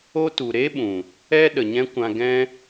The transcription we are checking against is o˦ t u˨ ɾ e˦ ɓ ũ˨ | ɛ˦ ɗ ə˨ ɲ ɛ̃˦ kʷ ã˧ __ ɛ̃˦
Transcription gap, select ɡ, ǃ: ɡ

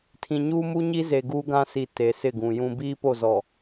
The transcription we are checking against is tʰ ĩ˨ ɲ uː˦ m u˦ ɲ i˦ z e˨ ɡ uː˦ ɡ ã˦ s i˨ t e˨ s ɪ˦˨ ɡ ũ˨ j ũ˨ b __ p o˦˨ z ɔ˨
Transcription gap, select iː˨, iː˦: iː˦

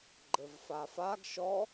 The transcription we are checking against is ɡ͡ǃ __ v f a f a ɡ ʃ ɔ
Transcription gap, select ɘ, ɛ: ɘ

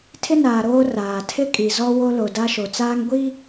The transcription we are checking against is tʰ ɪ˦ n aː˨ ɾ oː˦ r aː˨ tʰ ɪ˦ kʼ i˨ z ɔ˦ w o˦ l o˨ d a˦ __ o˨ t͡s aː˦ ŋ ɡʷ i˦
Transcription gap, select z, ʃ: ʃ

